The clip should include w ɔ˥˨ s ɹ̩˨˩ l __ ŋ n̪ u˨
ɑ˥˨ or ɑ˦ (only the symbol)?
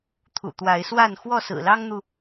ɑ˦